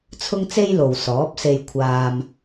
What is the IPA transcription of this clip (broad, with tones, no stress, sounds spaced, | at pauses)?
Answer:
t͡sʰ ʊ˥ ŋ t͡s e˥ j l o˨ w s ɔː˨˥ p̚ s e˧ j kʷʰ aː˧ m